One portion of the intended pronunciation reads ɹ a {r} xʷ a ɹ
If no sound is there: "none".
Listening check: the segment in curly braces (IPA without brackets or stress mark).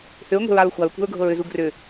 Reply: ɹ